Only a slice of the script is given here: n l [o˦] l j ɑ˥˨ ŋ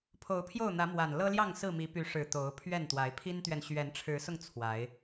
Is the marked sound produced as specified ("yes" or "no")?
no